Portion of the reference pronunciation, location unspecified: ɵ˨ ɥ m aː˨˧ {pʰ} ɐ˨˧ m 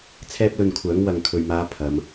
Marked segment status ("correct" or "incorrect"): correct